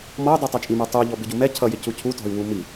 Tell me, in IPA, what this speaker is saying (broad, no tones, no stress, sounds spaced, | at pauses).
m ɔ u̯ dˤ i tˤ ʌ t͡ʃʼ i m ɛ tˤ u ʎ ɔ b ɪ ɟ u m ɛ cʰ ʌ j ɪ c u cʰ u t ɔ̤ y̯ w u m i